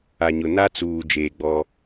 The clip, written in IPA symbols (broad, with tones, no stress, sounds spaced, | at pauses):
a˨ ɲ ʊ˨ n a˦ t͡s uː˨ d͡ʒ eː˨ ɡ͡b ɔ˦